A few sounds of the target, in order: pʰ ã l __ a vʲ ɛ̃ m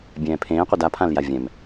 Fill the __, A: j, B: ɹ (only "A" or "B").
A